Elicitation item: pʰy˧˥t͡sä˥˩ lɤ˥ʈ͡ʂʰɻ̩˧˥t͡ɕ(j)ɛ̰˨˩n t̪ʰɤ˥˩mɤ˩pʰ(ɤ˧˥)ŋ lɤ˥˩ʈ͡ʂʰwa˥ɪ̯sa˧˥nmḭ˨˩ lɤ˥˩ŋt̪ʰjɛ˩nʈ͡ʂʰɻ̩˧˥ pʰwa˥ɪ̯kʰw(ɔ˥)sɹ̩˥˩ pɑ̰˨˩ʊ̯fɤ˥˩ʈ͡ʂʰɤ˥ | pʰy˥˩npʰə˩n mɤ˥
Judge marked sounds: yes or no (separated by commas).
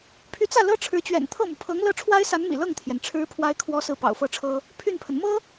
no, yes, yes